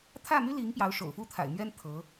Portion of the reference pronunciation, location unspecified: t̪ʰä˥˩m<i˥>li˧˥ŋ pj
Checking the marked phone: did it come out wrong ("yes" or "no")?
yes